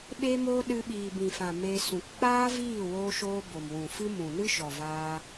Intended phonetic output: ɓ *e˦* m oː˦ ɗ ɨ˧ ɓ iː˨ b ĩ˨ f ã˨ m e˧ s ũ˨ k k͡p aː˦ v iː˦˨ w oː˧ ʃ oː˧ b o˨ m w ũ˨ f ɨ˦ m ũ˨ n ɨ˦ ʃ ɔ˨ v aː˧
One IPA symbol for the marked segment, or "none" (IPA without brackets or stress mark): e˦